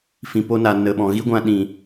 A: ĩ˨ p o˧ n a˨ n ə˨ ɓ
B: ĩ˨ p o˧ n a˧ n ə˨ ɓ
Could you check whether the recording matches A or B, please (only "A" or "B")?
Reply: A